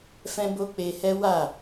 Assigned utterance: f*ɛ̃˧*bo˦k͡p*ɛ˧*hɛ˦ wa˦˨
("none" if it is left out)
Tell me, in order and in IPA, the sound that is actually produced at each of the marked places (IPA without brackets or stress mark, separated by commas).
ɛ̃˦, e˧